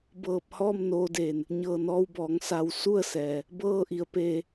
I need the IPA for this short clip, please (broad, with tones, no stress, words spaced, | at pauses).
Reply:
bɤː˧˩p̚hɔː˥˨m noː˧deː˧˩n | ɲɤː˧˩nɔː˧wbɔː˩˧ŋ sa˩w su˥˨ə̯sɛː˩ | bɤː˥˨ʔi˩˧ə̯peː˧